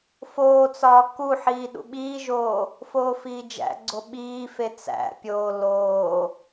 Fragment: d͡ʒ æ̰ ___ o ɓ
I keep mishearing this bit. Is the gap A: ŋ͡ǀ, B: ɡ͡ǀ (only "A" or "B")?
B